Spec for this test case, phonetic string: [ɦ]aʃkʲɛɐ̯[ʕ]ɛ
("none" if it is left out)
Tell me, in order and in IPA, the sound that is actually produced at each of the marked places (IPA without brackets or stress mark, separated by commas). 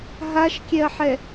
ɦ, ħ